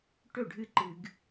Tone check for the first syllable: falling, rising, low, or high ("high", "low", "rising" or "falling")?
falling